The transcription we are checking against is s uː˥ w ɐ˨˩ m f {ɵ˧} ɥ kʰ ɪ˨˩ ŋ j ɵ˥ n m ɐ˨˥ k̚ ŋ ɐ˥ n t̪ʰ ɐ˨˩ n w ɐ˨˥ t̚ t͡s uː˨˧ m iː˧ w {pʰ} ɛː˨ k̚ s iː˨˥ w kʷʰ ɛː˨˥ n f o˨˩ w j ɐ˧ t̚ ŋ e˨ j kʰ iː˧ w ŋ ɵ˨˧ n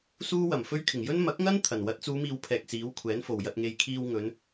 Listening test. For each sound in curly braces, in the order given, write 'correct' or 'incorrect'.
incorrect, correct

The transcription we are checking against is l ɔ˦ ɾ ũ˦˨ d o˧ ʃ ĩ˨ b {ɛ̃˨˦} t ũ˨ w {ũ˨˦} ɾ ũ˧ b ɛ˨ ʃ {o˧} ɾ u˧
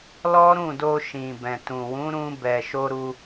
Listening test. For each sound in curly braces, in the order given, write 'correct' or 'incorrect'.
incorrect, correct, correct

